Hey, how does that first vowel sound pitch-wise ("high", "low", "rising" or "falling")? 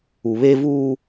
low